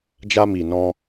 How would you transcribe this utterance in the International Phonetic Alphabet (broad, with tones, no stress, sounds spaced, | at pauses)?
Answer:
d͡ʒ a˧ m i˨ n ɔ̃˧